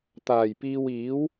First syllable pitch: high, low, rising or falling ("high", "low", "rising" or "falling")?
low